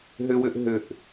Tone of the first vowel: high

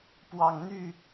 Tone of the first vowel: low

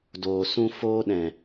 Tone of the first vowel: low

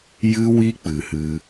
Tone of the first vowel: high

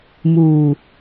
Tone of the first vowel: low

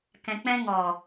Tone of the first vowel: low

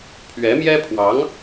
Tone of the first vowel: rising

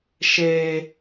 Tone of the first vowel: high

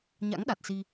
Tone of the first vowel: rising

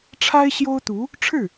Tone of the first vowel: high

